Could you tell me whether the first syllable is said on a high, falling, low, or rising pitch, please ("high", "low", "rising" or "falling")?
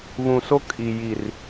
low